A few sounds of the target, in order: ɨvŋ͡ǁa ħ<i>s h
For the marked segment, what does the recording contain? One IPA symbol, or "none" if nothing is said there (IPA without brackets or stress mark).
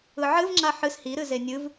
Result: ɨ